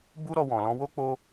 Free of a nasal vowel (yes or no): no